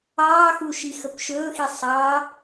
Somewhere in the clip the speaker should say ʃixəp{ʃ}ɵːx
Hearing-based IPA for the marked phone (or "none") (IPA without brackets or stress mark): ʃ